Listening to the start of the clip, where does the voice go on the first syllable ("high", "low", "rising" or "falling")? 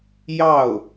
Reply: falling